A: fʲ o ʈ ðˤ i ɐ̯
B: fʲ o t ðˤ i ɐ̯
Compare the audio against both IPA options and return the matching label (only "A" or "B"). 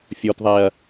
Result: B